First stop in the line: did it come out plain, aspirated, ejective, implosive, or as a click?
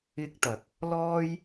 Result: plain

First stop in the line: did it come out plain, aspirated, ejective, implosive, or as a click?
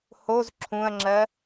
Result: click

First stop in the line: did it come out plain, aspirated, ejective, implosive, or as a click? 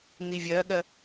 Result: implosive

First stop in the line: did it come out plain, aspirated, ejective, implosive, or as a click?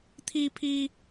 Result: aspirated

